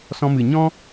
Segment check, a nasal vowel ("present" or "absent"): present